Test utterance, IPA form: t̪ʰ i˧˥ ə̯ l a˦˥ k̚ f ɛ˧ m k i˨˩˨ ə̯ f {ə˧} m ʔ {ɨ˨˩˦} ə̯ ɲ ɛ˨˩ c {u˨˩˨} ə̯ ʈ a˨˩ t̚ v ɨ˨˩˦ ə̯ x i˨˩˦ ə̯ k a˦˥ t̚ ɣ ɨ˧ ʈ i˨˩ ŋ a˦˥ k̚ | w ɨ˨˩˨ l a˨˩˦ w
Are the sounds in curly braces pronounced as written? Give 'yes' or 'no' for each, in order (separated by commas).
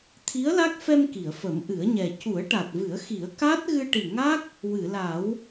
no, yes, no